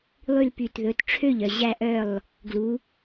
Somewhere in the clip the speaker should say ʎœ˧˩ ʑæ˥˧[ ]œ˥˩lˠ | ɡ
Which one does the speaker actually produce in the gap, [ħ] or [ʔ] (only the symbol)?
ʔ